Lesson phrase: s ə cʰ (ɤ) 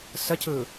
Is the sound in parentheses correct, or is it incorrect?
incorrect